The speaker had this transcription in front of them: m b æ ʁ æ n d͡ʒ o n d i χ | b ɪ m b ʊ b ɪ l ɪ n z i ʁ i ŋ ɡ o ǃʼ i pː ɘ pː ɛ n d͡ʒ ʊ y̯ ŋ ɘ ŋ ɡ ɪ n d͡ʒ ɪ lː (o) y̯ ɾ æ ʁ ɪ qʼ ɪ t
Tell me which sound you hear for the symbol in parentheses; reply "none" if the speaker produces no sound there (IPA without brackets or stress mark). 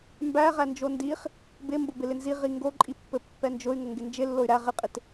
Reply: o